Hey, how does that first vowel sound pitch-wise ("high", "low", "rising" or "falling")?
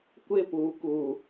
falling